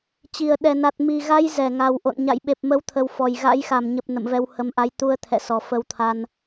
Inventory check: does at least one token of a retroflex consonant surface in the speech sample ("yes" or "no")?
no